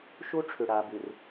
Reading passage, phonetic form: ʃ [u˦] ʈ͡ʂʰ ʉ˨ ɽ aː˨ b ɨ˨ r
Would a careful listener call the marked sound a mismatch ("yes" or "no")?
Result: no